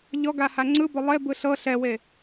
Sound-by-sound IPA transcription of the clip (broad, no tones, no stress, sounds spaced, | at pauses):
ʎ ɔ ɡ a h a ŋ͡ǀ ɯ b ɔ lˠ e b ɯ ɬ ɤ ɬ ɛ w e